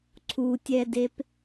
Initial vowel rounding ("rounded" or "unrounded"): rounded